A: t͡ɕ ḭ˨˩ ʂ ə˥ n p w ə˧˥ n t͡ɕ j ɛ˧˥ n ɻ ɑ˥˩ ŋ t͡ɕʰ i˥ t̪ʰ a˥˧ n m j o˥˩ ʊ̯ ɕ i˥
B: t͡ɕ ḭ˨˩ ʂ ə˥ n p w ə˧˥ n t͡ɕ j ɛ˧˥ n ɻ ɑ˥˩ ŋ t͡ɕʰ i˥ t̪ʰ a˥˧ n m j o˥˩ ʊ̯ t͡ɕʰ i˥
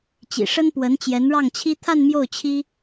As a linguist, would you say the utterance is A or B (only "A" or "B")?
B